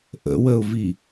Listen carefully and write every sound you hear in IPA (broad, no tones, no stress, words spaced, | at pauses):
ʔə̰wəʊ̯vi